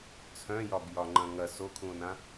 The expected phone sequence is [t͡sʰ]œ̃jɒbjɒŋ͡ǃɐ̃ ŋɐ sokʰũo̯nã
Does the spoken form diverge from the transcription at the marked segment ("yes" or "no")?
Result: no